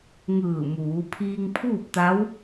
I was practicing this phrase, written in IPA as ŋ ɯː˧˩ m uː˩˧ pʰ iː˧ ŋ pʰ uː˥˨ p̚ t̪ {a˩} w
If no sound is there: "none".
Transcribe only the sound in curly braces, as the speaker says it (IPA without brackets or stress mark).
a˧˥